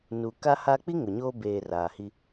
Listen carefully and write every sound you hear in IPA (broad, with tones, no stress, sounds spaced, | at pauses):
n u˨ k a˦ h a˦ k͡p i˦ ŋ ʊ˨ ɲ o˦ b eː˨ r aː˨ h i˦